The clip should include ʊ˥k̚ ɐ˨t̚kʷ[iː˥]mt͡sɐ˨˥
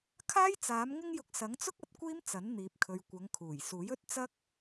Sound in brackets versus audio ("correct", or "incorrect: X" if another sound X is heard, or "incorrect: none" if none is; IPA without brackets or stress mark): correct